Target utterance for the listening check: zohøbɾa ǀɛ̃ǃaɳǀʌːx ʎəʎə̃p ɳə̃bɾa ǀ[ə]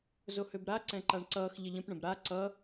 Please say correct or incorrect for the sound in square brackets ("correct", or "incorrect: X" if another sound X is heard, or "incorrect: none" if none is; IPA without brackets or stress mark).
incorrect: ʌ